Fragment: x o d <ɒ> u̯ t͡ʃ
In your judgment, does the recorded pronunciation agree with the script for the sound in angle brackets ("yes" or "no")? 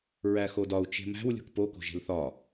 yes